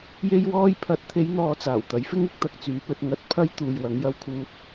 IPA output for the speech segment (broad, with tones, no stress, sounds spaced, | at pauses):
j e˥ j w ɔː˥ j pʰ ɐ˨˥ t̚ t̪ʰ e˨˧ j n̪ ɔː˨ t͡s aː˨˩ w t̪ ɐ˨˥ j f ɪ˥ ŋ ɪ˧ k̚ t̪ ɐ˧ k̚ t͡s yː˨˧ p ɵ˧ t̚ ŋ ɐ˧ t̚ pʰ ɐ˥ j t̪ uː˨ j w ɐ˨˧ ŋ j ɐ˥ w kʰ uː˥ t̚